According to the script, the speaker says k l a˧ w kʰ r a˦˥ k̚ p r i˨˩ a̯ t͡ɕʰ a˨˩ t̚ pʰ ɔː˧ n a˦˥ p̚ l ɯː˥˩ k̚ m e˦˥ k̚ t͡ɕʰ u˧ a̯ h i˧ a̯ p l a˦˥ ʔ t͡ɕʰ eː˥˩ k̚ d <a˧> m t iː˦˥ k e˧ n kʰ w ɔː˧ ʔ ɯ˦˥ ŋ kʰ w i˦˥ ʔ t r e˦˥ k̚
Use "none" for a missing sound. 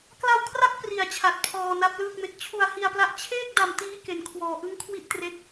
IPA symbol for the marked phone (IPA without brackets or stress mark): a˧